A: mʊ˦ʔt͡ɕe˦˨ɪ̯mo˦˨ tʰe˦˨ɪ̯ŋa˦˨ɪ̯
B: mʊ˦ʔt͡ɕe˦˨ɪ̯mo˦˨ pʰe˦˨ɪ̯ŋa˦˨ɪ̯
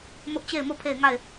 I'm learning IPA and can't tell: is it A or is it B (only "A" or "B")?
B